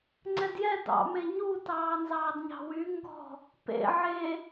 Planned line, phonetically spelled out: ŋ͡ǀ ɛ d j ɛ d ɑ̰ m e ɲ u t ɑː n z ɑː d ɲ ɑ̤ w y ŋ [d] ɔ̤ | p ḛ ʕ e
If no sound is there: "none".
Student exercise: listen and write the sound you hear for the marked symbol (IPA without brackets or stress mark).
ɡ